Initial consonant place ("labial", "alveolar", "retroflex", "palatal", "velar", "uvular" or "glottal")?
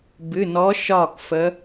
labial